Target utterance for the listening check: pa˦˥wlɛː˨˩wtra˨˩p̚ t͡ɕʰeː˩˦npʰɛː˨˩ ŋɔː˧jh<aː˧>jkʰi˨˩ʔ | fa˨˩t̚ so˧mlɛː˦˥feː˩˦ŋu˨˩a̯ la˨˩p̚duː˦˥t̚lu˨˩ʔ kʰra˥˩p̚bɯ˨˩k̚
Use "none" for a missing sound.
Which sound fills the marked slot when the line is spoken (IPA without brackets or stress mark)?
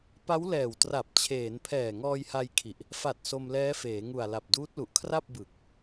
a˧